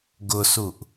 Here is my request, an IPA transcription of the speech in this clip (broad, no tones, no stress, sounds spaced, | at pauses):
ɡ ʊ s u ʔ